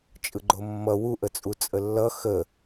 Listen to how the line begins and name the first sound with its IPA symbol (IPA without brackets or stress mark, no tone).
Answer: t͡ʃʼ